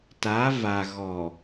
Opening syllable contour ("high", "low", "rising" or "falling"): rising